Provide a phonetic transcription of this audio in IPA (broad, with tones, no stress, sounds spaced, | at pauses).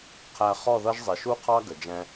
qʰ æ˧ χ ɔ˦˨ ð ʌ˦ ʒ zˤ ɪ˨ ʃ u˦ qʰ ɑ˦ ɡ ə˨ d͡ʒ ɛ̃˦